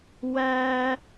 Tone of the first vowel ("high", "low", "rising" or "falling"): high